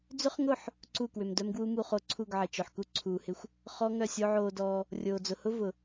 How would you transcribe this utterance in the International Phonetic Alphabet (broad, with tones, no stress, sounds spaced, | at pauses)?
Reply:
d͡z ʏ˦ χ ŋ ʊ˦˨ ħ | ǀ u˦˨ k w ʏ˨ m d œ˦ m ɡ w u˦ m u˧ χ o˧ ǀʰ u˦˨ ɡ ʕ ɪ˨ t͡ʃ œ˨ ħ k u˦ ǀʰ uː˨ h ɪ˧ xʷ | χ ɔ˦ ŋ œ˦˨ sʲ o˦ ʕ oː˧ d ɔː˧ | rʲ oː˨ d͡z ʊ˨ h ʊ˦ v ʊ˨